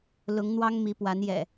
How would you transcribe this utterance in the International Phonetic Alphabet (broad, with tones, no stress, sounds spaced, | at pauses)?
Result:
l ʊ˨˦ ŋ n̪ w ɑ˦ ŋ m i˨˦ p w a˨˦ n j ɛ̰˨˩